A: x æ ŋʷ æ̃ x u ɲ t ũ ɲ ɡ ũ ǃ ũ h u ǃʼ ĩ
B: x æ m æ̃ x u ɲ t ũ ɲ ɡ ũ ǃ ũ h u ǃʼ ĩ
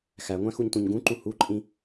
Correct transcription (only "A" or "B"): A